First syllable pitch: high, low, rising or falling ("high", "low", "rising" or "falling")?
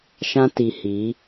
high